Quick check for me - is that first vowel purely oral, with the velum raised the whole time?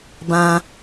no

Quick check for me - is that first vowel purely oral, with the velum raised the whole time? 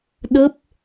yes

